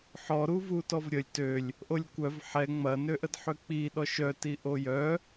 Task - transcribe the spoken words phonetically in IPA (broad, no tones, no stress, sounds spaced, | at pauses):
ħ ɔ ɾ u v u t ɔ v ɾʲ ə lʲ t ø lʲ | ʔ o lʲ kʷ œ v ħ ɛ ŋ͡m ɐ n ø ʔ ə d ħ ʏ k͡p i ɗ ɔ ʃ œ t i ʔ o j œ